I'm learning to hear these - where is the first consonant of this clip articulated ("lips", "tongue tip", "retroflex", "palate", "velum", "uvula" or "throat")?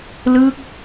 tongue tip